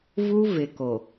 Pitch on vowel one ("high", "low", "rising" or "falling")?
high